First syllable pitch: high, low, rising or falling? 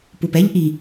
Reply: low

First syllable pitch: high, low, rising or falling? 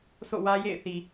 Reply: falling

